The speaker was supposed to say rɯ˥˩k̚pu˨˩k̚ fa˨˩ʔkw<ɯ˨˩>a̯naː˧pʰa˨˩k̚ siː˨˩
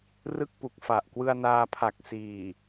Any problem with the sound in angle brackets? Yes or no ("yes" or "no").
yes